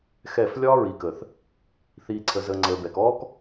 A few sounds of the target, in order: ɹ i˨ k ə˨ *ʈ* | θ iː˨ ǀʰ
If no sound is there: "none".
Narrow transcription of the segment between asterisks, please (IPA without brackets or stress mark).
θ